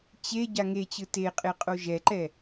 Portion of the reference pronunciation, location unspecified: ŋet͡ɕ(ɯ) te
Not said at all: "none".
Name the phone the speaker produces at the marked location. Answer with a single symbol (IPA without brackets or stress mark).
ɯ